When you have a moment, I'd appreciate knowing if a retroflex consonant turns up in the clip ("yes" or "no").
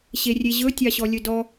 no